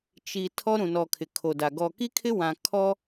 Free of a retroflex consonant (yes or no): yes